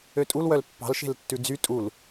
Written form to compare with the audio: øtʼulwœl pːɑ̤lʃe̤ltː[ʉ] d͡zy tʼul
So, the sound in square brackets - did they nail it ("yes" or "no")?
yes